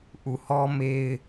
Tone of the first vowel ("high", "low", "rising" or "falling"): low